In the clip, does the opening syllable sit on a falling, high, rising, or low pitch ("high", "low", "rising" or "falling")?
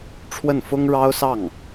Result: falling